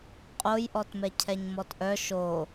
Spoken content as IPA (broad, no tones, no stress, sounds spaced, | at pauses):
qʼ o j ʔ ɔ t m ɛ cʰ ɛ ɲ m ɔ t ʔ œ ʃ o